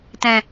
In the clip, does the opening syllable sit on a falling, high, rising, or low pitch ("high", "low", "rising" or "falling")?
low